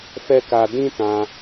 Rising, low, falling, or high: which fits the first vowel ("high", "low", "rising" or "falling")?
high